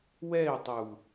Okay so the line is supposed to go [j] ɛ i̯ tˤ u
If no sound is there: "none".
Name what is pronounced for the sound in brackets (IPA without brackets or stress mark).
w